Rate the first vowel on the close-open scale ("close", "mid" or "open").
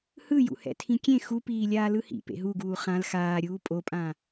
close